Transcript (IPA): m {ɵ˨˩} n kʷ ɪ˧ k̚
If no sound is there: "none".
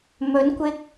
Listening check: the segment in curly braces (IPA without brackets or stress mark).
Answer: ɵ˨˥